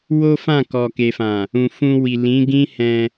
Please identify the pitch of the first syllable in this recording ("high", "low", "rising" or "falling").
high